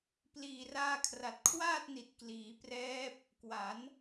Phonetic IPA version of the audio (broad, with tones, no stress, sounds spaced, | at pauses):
p l iː˨˩ r aː˧ kʰ r a˨˩ t̚ kʰ w aː˥˩ t̚ n i˨˩ t̚ k l iː˩˦ p r ɛː˦˥ p̚ | k w a˩˦ n